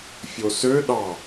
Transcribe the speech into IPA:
fʲosø ɗɑ

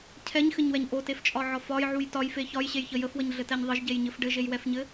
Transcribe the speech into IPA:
cʰɛɲxɘɲwɛɲ ʔoteft͡ʃʼɒʕɒ fɒjʕuj tɒjfe çɒjɕejçə jəfwəɲɮɘtɛɲ ðˤɘʒɟejɲɘf ɖɘʒejwɛfɲɘ

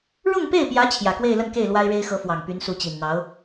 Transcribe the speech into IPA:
ɻʊ˥˧ŋpe˥˩ɪ̯pjä˧˥ t͡ɕʰjä˨˩kwe˥˧ɪ̯lə˥˧nke˥˩ɪ̯ lwa˥ɪ̯ɻe˥ɪ̯xɤ˧˥ fwɑ˨˩ŋpy˧˥nsu˧˥t͡ɕi˨˩n n̪ɑ˧˥ʊ̯

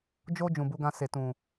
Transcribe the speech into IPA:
d͡ʒo˧ d͡ʒũ˨bu˨˦ɡã˧ se˨tũ˨

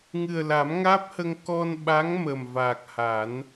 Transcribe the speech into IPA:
ŋɨ˨˩ə̯la˨˩˦mŋaː˦˥p̚hə˧ŋ kɔ˧nɓa˧˥ŋ mə˨˩m vaː˨˩k̚ha˨˩˦n

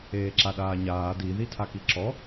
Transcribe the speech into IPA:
eːǁaɗaːɲaː di ðitʰakiǁɔ

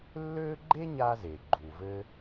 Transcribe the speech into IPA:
lːø˥ ɡ͡ǃe˥ɲa˧ze˩ ɡ͡ǃu˩vɘ˧

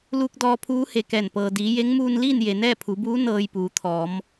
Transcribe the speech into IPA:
luː˧k̚dɔː˧ pʰuː˧˥he˧˩kɛː˧˩n pɤː˩diː˩˧je˧˥ŋ muː˧nliː˥˨n je˩nɛː˥˨pʰu˩˧buː˧˥ nɤː˧jpuː˩˧t̪ʰɔː˩˧m

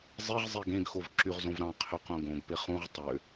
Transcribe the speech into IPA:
zˤiʁ zˤiɡẽɡxov ǁyʁzõvɾɑ̃ qʰøqõɡõɡ peχũʁ tˤø

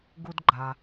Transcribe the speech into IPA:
ɡu˦dɡ͡ǃa˨

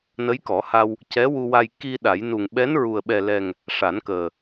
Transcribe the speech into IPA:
nə˧˥jkɔ˨˩˦ha˧w | cɛ˧˥wu˧wa˧j ki˧ ɗa˨˩˦j nu˨˩ŋɓɛ˧˥nɹu˨˩ə̯ ɓɛ˨˩lɛ˨˩ŋ | ʂa˨˩˦nkəː˨˩

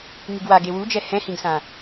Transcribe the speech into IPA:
ŋiɡwa ɡewud͡ʒɛ hɛ̃hĩɡsã

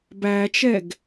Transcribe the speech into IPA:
bæt͡ʃɛɡ

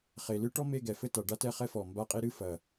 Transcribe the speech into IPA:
χe˨˩lɨ˥ʈɔ˥me˥˧ ɡɛ˨˩fɘ˥ta˨˩ ɖa˥tɛ˥˧ χɛ˥fɔ˨˩ mba˥˧qʼe˥ ɾɨ˥ fɐ˨˩

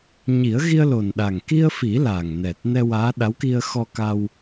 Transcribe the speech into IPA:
ɲi˨˩˦ə̯ɣi˧ə̯lo˨˩nɗa˨˩ŋ ki˧ə̯fi˨˩˦ la˨˩ŋnɛ˨˩t̚ nɛ˧waː˧˥ ɗa˧˥wki˧ə̯ xɔ˧ka˧w

